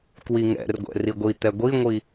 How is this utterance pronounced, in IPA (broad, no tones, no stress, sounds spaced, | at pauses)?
k w i ŋ ɛ̰ r ɡʷ ɛ̰ r i ɡʷ i t̪ ɛ ɡʷ i ŋʷ i